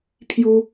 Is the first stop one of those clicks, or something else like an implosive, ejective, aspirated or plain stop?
aspirated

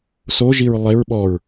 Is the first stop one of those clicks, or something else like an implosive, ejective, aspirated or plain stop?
implosive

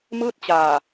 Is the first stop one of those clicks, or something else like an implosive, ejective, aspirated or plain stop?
plain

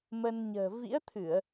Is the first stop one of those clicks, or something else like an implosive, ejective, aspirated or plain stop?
aspirated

